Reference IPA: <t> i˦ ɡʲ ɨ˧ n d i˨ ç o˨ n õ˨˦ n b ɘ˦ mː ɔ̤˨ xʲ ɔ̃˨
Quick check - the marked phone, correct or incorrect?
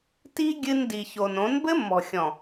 correct